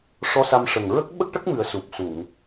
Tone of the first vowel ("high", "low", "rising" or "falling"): rising